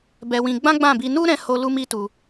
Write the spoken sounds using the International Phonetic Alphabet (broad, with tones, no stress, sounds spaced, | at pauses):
b ɛ˧ w ĩ˧ ɡ͡b ã˦ ɡ͡b ã˦˨ b i˧ n u˦ ɾ ɛ̃˧ h o˧ l u˦ m i˦ t u˧